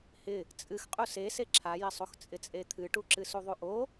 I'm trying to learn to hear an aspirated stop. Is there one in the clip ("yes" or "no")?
yes